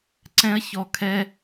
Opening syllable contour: high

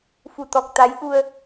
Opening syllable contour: low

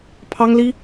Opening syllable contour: high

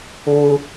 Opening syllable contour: high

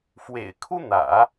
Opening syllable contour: low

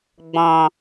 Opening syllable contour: low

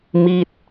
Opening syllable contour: falling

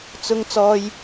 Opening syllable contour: high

